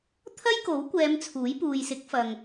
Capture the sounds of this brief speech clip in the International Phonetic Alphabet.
t̪ʰ ɐ˥ j k o˨˥ w kʷ ɛː˨˧ m t͡sʰ uː˨˥ j p uː˨ j s ɪ˨˥ k̚ f ɐ˨ ŋ

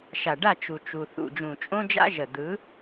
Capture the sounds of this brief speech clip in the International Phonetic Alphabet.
ʃ a˨ ɖ a˦˨ t͡ʃ u˨ t͡ʃ u˨ θ ṵ˨ d͡ʒ ũ˨ t͡ʃʼ õ˦ d͡ʒ a̰˦ ʒ ə˨ d̪ ɯ˨˦

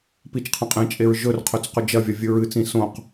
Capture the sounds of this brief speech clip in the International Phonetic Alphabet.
p i t͡ʃ qʰ ɐ̃ qʼ ẽ t͡ʃʼ e ɹ ʒ ɵ r qʰ ɵ t͡s q ɵ d͡ʒ ɐ vʲ ɐ vʲ ɨ ɹ ɨ t͡s ĩ s õ q

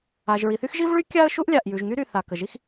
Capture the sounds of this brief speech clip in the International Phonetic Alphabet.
a˩ ʒ ɹ i˩ θ y˥ x ʒ i˥ v ɭ y˥ kʲ a˥ ə̯ ʃ u˥ ʔ lʲ a˩ ʔ j ʉ˩ ʒ ŋ y˥ ɾ y˩ θ a˩ k ə˩ ʒ i˥ x

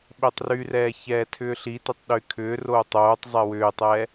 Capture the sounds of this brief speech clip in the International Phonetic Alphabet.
ɓ e tˤ r y r ɛː ç ɛː tʰ ʏː ɬ i t e tˤ ɗ y kʰ ʏː r oː tˤ oː tˤ zˤ e w ʏː tˤ ɛː

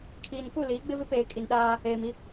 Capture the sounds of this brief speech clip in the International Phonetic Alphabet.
kʰ iː˨ n k u˦˨ l iː˨˦ ɡ͡b ɪ˦ v ɪ˦ p eː˨ kʼ i˨ n ɗ aː˦ | eː˨ m i˦

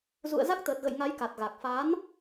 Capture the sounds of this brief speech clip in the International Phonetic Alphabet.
z ṵ˧˨ ə̯ z a˦˥ k̚ t̪ əː˨˩ t̚ ɣ ə̰˧˨ j ŋ a˨˦ j k a˨˩ t̚ ɣ a˨˩ k̚ f a˨˦ n

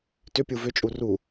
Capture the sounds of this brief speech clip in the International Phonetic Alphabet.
t ʏ pʲ u v ʏ t͡ʃʼ u r u

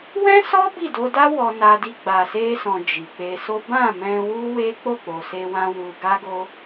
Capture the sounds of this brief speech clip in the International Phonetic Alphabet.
w ɛ̃˦ s ɔ˦ b i˦˨ d o˧ d a˦ w ɔ˧ n a˧ d i˧ ɡ͡b a˨ s e˧ s ɔ̃˨ d͡ʒ i˨ k͡p e˧ s o˦ b ã˦˨ m ɛ̃˧ w u˦ w e˦ k͡p o˦˨ k͡p o˨ s e˧ w ã˧ w u˧ ɡ a˦ ɡ o˦

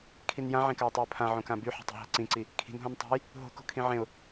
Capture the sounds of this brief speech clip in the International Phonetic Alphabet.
kʰ i n j ã ʕ ẽ k a ʊ̯ tˤ i ʊ̯ pʰ ã ʕ õ k ã b y ħ e̤ tˤ i̤ ɦ a̤ ǀ ĩ ǀ i | kʰ i̤ n ɦ õ n tˤ a̤ j | ɦ o̤ k o̤ kʰ ĩ ʕ ẽ ʊ̯

